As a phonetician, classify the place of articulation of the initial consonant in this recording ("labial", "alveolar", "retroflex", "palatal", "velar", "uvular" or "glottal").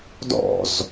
alveolar